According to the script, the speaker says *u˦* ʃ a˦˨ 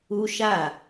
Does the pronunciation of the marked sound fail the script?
no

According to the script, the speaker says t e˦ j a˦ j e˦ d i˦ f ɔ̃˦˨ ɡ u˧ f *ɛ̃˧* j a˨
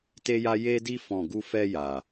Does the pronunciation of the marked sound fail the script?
yes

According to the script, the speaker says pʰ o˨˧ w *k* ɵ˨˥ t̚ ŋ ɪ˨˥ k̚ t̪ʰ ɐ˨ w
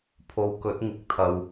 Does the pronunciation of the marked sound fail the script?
no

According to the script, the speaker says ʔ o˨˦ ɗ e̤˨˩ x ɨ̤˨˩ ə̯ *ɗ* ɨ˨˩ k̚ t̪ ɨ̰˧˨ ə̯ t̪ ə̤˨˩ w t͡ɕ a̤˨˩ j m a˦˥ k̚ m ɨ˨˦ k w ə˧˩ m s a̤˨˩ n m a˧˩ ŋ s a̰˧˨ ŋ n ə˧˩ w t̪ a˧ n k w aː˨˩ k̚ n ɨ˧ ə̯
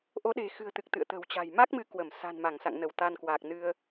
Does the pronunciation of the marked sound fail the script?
yes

